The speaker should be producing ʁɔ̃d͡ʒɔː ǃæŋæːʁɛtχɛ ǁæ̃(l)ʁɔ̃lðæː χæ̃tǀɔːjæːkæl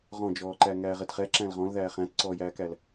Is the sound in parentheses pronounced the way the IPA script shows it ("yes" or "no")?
yes